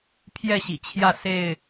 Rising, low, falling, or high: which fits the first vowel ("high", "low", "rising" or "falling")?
falling